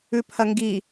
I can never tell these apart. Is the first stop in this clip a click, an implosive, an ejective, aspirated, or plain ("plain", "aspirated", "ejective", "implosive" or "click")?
aspirated